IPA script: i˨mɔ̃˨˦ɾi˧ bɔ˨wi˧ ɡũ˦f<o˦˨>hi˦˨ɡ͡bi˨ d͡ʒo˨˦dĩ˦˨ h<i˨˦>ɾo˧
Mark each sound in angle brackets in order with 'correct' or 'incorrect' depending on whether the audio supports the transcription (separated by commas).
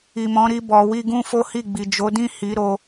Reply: incorrect, correct